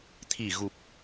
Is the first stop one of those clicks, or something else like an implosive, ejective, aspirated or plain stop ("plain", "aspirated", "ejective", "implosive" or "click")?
aspirated